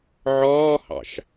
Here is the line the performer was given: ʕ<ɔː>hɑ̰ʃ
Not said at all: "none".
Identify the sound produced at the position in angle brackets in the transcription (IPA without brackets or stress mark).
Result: ɔː